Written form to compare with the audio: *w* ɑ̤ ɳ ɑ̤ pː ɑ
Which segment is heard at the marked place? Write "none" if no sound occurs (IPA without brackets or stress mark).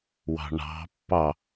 w